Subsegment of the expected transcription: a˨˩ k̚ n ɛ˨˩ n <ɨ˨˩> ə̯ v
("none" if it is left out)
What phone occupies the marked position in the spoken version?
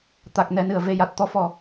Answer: ɨ˨˩˨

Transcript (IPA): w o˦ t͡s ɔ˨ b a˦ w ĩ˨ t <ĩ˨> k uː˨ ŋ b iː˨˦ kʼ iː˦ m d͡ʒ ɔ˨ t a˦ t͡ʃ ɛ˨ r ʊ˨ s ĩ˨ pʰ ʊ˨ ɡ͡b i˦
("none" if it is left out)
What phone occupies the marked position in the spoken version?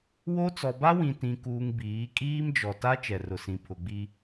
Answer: ĩ˨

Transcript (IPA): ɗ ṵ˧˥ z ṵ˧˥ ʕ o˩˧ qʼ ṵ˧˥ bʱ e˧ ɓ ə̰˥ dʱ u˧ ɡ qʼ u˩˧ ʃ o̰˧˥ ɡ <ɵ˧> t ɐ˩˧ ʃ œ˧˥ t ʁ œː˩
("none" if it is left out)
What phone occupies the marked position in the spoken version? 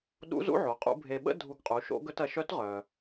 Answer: ɵ˧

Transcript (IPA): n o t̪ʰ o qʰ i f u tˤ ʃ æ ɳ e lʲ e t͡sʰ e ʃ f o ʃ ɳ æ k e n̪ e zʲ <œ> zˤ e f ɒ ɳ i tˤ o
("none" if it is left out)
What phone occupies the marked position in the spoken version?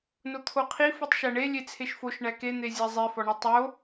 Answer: æ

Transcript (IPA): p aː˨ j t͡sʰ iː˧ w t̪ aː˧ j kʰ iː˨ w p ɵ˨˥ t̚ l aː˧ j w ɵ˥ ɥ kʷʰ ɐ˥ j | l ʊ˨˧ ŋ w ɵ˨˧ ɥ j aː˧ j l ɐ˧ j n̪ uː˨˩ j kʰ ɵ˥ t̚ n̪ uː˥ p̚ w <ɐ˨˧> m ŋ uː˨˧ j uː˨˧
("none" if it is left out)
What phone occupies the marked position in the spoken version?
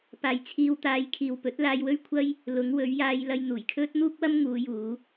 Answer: ɐ˥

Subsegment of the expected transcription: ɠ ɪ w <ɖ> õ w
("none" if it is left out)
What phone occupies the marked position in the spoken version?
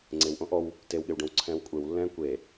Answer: ɖ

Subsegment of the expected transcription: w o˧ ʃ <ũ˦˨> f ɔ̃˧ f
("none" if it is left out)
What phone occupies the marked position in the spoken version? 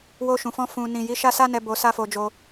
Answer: ũ˨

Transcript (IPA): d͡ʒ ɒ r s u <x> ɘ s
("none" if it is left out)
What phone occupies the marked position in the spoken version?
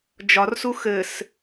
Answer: x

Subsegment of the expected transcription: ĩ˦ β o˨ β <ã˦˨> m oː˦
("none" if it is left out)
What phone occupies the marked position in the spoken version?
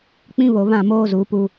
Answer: ã˦˨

